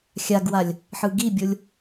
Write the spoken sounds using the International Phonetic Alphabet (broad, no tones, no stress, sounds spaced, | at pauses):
xʲ a ɡ w a lʲ | ħ ɯ ɡ i bʲ o lʲ